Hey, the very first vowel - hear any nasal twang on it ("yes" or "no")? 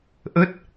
no